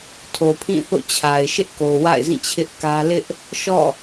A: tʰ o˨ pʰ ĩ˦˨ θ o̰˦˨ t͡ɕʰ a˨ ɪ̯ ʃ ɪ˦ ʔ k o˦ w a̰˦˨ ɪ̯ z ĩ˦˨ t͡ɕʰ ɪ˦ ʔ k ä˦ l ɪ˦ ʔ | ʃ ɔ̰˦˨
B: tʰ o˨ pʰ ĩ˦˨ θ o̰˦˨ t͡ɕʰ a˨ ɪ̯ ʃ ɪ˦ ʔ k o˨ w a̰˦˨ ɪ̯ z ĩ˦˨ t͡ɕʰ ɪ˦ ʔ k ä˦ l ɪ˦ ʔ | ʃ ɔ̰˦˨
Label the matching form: B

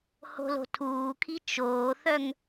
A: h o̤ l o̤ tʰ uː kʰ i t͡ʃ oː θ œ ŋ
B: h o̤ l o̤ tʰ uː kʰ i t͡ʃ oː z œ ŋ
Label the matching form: A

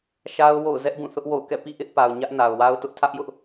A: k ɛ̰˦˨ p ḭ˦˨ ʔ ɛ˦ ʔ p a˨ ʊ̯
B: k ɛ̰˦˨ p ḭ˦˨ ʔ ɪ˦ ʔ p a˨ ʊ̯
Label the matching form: B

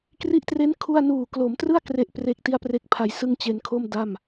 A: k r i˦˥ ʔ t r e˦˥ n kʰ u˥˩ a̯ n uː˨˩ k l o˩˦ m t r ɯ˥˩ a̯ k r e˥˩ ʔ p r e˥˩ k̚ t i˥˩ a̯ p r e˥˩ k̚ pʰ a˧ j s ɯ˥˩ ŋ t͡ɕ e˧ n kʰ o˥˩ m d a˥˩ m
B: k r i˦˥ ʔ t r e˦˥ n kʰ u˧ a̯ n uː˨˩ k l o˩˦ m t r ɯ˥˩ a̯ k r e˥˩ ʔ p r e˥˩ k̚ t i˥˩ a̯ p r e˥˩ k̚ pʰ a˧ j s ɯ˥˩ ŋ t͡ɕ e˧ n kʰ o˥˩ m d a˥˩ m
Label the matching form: A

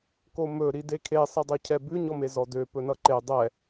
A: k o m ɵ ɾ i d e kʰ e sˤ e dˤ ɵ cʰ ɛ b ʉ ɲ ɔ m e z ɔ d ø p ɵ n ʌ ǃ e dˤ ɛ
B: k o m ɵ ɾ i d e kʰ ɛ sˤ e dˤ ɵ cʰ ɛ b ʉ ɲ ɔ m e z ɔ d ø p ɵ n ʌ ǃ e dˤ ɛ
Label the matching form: A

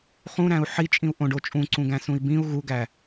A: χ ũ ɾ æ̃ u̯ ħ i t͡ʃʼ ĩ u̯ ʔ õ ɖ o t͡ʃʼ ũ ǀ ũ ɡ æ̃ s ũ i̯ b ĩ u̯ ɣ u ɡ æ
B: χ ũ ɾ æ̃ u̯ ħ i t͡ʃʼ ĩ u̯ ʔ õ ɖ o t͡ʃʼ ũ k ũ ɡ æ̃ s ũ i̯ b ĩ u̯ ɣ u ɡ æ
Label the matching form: A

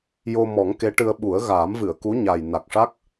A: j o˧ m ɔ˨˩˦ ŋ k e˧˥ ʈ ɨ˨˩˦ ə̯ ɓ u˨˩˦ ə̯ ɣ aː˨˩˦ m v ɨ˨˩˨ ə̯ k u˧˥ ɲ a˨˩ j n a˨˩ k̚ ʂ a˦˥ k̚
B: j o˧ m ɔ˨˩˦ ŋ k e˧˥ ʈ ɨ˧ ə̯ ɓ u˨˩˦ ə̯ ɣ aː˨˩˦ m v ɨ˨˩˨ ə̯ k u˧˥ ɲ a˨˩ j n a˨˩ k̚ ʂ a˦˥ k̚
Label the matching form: B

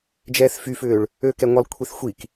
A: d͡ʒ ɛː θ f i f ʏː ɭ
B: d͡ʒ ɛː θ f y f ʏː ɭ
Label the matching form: B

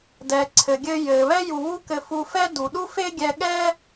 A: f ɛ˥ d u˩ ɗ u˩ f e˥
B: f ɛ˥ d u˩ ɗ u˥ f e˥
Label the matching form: B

